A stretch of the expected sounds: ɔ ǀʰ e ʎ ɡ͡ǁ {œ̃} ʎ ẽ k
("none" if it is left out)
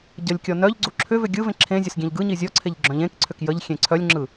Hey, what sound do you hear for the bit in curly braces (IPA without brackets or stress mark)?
œ̃